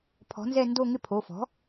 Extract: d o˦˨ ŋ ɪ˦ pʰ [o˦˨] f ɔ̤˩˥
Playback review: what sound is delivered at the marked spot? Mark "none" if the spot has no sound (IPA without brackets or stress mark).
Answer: o˩˧˩